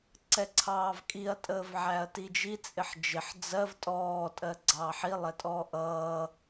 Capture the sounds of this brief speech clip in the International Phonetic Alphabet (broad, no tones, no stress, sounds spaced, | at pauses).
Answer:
ǀ ɛ ǀʰ ɑː v kʼ i ɐ̯ tʼ əː v ʕ æ ɐ̯ t i d͡ʒ i t͡sʼ ɪ ħ d͡ʒ ɪ ħ d͡z ɜ v tʼ ɔː tʼ ɜ ɡ͡ǀ ɑː ħ i lˠ ɛ tʼ ɔː ʔ ʌː